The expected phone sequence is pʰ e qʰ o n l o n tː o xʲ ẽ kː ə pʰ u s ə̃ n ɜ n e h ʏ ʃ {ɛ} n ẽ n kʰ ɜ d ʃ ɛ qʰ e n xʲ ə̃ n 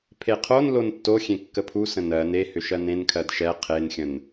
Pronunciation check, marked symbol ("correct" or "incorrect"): incorrect